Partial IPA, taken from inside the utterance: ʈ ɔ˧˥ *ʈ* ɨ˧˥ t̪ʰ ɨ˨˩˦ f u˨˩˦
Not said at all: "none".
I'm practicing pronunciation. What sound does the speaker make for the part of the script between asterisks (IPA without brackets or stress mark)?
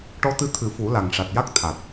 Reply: t̪